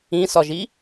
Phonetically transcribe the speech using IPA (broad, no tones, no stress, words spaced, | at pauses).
ĩsɒʒi